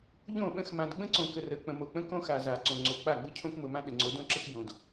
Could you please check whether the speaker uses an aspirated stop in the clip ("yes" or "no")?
yes